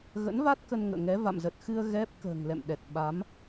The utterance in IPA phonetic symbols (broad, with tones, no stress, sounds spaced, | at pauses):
ɣ ə̰˧˥ n v a˦˥ t̚ k ə˧ n ŋ ə̰ː˧˨ ŋ ɛ˨˦ v a̰˧˨ m z ə˨˩ t̚ x ɨ˧ ə̯ ɣ ɛ˦˥ p̚ k ə̤ː˨˩ ŋ l ɛ̰˧˨ m ɗ ɛ˨˩ t̚ ɓ a˨˦ m